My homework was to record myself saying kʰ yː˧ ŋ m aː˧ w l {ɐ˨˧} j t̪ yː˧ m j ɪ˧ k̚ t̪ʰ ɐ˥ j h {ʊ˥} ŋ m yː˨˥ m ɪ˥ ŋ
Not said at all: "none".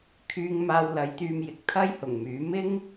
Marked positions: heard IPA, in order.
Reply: ɐ˨˧, ʊ˨˩

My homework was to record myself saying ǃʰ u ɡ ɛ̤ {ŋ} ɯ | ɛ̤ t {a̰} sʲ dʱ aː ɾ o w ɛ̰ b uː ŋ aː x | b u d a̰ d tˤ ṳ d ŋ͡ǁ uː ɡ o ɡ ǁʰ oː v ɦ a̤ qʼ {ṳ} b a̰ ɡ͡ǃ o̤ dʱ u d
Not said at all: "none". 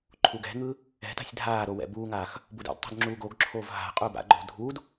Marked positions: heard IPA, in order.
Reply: ŋ, a̤, u

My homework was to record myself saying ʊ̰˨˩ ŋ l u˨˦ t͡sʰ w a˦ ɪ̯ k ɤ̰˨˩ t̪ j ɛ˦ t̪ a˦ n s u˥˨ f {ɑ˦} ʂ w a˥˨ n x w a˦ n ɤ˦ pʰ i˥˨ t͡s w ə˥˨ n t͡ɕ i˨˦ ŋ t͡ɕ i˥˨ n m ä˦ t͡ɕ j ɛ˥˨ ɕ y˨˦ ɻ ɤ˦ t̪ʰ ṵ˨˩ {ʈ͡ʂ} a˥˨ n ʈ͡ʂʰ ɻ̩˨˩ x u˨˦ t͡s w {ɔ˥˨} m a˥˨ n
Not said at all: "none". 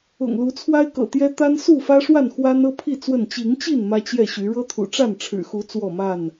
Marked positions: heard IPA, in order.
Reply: ä˦, ʈ͡ʂ, ɔ˥˨

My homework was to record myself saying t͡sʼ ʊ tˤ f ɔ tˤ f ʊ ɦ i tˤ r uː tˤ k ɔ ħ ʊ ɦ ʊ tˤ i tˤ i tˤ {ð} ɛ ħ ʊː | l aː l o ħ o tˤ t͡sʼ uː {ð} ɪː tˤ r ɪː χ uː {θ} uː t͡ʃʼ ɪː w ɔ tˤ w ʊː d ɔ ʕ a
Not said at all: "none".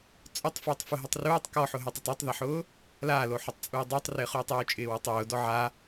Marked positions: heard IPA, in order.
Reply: ð, dˤ, tˤ

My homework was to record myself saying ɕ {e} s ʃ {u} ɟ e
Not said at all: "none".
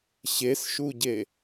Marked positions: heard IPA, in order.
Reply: e, u

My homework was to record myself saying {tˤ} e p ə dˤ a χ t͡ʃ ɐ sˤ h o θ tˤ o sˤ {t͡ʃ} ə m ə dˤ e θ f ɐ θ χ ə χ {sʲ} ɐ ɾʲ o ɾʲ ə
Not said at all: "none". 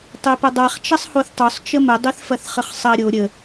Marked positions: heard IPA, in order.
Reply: tˤ, t͡ʃ, sˤ

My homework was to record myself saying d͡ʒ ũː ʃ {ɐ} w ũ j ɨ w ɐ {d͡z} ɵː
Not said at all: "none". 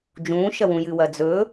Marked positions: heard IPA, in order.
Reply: ɐ, d͡z

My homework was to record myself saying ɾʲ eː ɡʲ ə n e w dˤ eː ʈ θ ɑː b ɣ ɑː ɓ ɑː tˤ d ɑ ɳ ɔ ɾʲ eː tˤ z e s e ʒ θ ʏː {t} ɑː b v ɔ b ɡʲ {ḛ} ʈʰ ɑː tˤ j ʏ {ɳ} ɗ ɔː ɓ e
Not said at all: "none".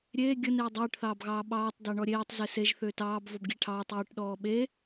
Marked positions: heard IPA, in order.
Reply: t, e, ʈ

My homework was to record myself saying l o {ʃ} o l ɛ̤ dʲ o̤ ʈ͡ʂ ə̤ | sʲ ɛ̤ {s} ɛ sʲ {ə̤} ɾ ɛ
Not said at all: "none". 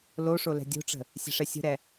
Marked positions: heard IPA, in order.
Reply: ʂ, ʂ, ə̤

